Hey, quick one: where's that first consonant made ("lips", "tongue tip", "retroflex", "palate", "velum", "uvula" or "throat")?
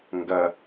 velum